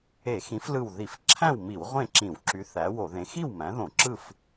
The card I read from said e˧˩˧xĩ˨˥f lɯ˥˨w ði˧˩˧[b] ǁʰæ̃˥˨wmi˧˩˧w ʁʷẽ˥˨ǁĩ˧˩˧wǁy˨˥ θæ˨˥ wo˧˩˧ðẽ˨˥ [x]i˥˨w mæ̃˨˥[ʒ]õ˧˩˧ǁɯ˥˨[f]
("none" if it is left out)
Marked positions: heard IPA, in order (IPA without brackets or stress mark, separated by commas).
f, x, ð, f